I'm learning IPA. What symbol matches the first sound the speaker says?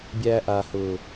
bʲ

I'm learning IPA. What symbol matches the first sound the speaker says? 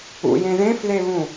ṵ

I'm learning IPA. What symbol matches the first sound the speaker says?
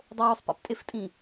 dˤ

